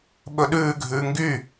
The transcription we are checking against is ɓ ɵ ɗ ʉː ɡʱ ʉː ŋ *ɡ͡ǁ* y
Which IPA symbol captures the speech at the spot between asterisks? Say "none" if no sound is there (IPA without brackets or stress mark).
ɡ